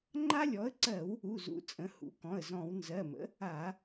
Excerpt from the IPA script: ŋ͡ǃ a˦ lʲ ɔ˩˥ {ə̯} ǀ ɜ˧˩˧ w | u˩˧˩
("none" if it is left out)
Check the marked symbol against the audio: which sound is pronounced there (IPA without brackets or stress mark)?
ə̯